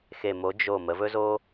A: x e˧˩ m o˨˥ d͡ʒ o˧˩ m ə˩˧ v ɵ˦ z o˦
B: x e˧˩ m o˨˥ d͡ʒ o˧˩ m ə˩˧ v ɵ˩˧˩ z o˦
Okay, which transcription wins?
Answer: A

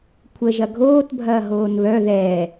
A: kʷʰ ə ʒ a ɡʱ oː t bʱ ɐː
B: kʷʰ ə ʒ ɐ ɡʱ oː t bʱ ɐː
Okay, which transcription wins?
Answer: B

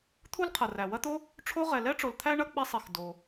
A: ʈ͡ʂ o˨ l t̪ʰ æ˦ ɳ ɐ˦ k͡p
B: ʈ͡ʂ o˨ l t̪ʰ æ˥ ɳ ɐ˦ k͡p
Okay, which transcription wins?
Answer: A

